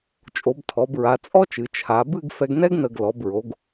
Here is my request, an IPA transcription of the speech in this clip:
t͡ʃʼ o˩˧ b tʰ ɔ˩˧ b ɹ a˩˧ t͡sʼ ɔ˥ t͡ʃ ɨ˩˧ t͡ʃʰ a˩˧ b ɨ˥˧ ɡ f ɛ˧ ɡ n ɛ˥ ɡ n ə˧˩ ɡ l ɔ˩˧ b ɹ o˩˧ ɡ

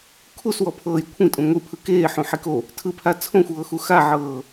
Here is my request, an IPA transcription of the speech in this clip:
kʰ u s w ɔ pʰ ɤː j kʷʰ ĩ tʼ ũ ŋʷ i pʰ ɯ k eː ħ ũ ħ i k o | tʰ ɯ pʰ a t͡sʰ õ xʷ ɤː x u x a ʕ ɤː

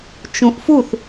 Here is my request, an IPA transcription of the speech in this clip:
t͡ʃ ũ ʔ f u θ

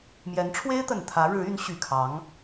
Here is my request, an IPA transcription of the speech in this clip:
m j ɛ˧˥ n ʈ͡ʂʰ w e˥ ɪ̯ t̪ ə˨˩ n t̪ʰ ä˧˥ ɻ ɻ̩˧˥ y˧˥ n ɕ y˨˩ kʰ ɑ˧˥ ŋ

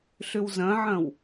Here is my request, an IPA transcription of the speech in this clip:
ɬ ʏ w z ɐ̃ ʕ ɐ̃ w

